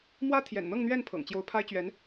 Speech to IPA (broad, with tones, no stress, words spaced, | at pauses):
mwä˥t̪ʰjɛ̰˨˩nn̪ɤ˥˧ŋn̪ɥɛ˥˩n pʰɤ̰˨˩ŋt͡ɕjo˧˥ʊ̯pʰa˥ɪ̯ t͡ɕɥɛ˧˥n